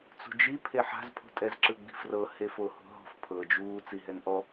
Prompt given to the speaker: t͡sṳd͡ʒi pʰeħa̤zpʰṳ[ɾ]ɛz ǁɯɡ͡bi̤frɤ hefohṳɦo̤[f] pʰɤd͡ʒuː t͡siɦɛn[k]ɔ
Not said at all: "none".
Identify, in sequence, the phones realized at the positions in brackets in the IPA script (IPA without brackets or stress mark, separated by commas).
tʼ, f, ʔ